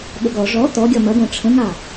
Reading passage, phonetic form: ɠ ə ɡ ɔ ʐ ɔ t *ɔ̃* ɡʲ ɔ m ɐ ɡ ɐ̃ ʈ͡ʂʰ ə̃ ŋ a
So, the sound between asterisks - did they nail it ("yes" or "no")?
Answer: no